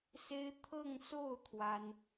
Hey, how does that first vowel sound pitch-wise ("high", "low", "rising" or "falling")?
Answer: high